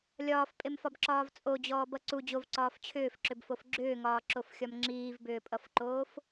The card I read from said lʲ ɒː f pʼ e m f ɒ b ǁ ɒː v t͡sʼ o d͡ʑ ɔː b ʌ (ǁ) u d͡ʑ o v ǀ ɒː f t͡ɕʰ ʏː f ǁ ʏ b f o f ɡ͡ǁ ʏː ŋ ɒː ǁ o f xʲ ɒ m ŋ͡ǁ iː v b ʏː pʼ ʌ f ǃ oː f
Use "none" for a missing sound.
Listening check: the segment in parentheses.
ǀ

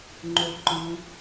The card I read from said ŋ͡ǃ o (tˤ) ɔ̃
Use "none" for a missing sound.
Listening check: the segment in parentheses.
ǃ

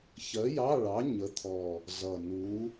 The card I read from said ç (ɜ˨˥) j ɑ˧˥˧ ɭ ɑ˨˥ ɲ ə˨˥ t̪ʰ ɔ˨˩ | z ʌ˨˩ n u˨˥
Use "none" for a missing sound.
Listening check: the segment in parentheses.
ɜ˨˥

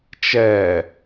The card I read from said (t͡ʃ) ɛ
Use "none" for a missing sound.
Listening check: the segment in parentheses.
t͡ʃ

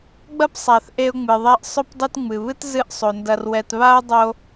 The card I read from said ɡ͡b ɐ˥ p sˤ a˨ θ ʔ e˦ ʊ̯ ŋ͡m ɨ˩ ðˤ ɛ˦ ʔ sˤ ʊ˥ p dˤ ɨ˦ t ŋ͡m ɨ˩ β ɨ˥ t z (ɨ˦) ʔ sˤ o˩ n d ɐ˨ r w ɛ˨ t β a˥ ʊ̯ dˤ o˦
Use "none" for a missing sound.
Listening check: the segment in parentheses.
ɨ˦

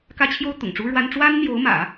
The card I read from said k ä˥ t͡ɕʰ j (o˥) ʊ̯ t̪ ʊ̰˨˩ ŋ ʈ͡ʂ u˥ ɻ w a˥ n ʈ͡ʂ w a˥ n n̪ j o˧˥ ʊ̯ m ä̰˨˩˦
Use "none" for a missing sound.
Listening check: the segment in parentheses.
o˥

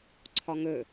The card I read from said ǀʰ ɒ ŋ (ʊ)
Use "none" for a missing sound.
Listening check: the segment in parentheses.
ɵ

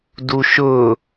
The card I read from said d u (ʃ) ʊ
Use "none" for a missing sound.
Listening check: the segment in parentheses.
ʃ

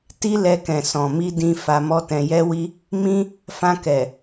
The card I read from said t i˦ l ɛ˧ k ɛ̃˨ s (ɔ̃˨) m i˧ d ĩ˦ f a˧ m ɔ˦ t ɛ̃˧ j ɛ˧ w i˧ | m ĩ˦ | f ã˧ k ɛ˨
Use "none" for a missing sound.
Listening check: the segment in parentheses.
ɔ̃˨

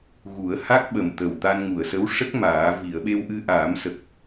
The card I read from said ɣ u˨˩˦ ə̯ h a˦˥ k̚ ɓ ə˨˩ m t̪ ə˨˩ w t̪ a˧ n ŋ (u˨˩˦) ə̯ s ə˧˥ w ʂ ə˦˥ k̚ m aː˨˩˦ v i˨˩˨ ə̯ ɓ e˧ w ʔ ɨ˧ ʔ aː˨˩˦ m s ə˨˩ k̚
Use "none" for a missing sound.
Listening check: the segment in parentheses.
u˨˩˨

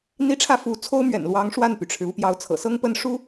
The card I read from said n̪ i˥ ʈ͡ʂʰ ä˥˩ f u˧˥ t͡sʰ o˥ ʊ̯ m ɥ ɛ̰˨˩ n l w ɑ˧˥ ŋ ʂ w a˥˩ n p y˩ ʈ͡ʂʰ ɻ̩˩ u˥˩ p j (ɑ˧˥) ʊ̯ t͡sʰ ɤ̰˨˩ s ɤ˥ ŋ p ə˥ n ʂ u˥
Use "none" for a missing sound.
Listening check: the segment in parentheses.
ɑ˧˥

